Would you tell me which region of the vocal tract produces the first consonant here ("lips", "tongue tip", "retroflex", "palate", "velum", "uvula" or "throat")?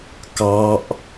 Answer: velum